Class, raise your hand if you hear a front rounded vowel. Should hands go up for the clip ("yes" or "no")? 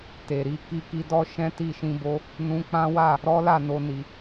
no